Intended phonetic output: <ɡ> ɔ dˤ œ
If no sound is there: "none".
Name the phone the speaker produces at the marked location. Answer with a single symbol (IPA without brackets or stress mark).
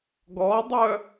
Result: ɡ